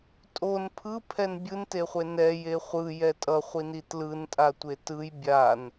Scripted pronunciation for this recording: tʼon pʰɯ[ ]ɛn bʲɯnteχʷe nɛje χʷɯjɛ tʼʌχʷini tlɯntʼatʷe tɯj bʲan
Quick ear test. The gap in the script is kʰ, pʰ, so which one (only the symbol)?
pʰ